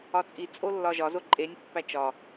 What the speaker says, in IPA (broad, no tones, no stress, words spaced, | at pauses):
ɒt͡sʼi t͡sʼolːɒʒɒ zoǃʼenʲ pːæt͡ʃɒ